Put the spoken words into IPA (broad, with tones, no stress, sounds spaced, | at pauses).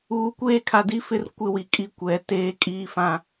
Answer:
uː˨ kʷ eː˦˨ kʰ a˨ d i˦ f ɪ˦ r kʷ ɪ˦ w i˨ kʼ i˦ kʷ ɛ˨ t eː˦ kʼ iː˦ f ã˦